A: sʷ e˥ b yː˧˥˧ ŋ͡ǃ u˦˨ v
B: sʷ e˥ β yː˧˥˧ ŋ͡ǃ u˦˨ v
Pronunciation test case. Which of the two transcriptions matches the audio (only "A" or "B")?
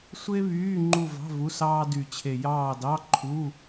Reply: B